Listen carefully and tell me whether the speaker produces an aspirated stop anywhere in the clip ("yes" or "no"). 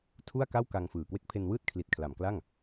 yes